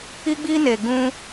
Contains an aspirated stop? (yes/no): no